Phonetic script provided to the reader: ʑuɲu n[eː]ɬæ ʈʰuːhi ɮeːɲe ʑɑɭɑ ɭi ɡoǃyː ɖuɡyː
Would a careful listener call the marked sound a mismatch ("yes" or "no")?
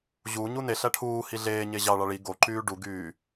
yes